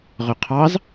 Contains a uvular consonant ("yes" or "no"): yes